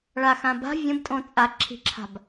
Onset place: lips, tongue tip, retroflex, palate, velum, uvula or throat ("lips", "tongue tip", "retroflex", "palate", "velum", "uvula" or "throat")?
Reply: retroflex